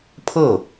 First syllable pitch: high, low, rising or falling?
falling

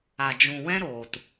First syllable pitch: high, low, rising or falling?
low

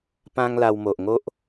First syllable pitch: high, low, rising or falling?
high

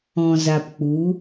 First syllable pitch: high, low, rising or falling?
low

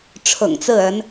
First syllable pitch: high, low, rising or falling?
low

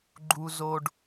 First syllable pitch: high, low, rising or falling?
high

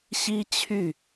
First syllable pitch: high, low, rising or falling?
high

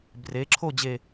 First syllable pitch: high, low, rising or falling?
rising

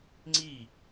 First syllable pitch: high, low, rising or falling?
falling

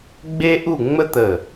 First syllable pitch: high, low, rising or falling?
high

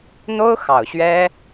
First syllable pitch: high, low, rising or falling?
high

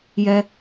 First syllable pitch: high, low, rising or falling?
high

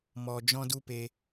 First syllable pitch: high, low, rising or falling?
low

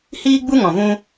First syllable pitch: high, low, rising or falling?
high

